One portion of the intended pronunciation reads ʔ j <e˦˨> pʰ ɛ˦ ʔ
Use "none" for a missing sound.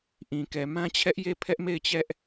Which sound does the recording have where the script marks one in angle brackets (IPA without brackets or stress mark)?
e˦˨